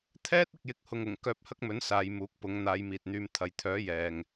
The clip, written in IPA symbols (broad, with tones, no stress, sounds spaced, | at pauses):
t̪ʰ ɛː˥ t̚ ɪ˨ k̚ j ɪ˨˥ k̚ h ʊ˨ ŋ ʊ˨˩ ŋ k œː˧ p̚ h ɐ˥ k̚ m ɵ˨˥ n s aː˨˧ j m uː˨˥ k̚ p ʊ˨˥ ŋ n̪ aː˨˧ j m iː˨ t̚ n̪ yː˨˧ m t̪ʰ ɐ˨ j t̪ʰ œː˨˥ j ɛː˨ ŋ